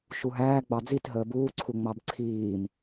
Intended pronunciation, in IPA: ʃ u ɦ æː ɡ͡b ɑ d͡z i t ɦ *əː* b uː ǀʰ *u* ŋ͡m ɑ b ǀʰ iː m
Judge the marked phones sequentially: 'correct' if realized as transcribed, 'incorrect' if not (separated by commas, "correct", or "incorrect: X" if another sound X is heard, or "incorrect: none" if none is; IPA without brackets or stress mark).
correct, correct